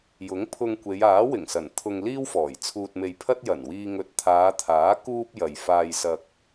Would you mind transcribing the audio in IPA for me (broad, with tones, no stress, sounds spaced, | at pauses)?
j ʊ˨˥ ŋ pʰ ʊ˧ ŋ kʷ e˨˧ j aː˨˥ w ɪ˨˩ ŋ s ɐ˨˩ n t̪ʰ ʊ˧ ŋ l iː˥ w f ɔː˨˩ j t͡sʰ uː˧ t̚ m e˧ j pʰ ɐ˥ t̚ j ɐ˨˩ n w iː˧ ŋ ɵ˨ t̚ t̪ʰ aː˨˧ t̪ʰ aː˨˥ k uː˥ p̚ j ɐ˨ j f aː˧ j s ɐ˧ k̚